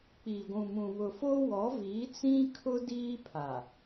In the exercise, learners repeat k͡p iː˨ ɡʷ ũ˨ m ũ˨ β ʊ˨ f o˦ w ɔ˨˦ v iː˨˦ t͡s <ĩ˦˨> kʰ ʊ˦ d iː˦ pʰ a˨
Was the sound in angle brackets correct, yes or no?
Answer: no